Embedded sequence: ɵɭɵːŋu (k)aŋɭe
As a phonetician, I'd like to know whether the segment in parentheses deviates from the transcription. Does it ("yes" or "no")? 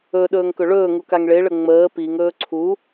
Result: no